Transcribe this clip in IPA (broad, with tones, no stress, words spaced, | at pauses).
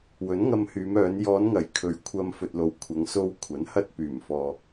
wɵ˨˥nŋɐ˧mhyː˨˧m œː˨˧n jɔː˨˧nŋɐ˨˩j kʰɵ˨ɥkʷʰɐ˧mfɵ˨t̚ lo˨w kʷʰɐ˨˧ŋso˧wkʷʰɐ˨˥n hɐ˧t̚ pyː˨˩mfɔː˨